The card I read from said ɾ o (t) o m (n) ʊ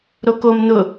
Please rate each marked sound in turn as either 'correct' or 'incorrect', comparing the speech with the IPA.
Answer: incorrect, correct

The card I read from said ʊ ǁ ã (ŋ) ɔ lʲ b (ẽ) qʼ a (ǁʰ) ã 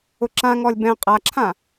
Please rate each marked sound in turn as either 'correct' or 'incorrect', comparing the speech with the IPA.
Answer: correct, incorrect, correct

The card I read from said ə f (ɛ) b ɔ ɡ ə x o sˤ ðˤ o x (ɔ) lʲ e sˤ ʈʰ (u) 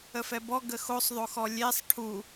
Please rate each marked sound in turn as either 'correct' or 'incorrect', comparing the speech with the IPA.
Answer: correct, correct, correct

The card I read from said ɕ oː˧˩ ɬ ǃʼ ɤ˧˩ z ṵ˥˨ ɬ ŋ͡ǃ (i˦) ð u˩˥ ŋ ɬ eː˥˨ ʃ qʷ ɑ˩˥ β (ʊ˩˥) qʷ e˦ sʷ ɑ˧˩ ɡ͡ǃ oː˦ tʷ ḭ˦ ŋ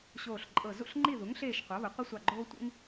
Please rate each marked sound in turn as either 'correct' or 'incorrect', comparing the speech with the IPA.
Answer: incorrect, correct

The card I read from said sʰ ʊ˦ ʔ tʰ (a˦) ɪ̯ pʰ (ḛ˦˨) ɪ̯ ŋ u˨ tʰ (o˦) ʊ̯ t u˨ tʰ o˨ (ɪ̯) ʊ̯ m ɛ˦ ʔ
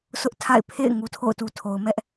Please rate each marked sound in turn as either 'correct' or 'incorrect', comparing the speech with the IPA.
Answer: incorrect, correct, incorrect, incorrect

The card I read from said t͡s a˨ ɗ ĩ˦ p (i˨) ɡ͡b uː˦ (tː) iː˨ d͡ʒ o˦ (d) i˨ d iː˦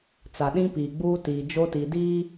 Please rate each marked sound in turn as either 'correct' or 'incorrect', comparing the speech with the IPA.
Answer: incorrect, incorrect, incorrect

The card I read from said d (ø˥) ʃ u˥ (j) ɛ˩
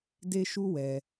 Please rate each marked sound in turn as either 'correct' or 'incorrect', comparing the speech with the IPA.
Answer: incorrect, incorrect

